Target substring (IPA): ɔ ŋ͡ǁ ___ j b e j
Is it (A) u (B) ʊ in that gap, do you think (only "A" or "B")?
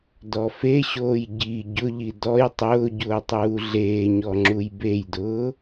A